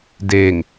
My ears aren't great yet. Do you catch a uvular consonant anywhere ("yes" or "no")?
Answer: no